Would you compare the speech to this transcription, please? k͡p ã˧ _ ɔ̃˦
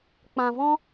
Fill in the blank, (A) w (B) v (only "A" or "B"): B